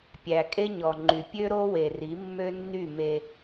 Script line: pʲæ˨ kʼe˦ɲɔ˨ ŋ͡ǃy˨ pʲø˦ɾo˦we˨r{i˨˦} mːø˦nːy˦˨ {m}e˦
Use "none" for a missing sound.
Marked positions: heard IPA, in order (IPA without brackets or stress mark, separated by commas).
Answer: i˨˦, m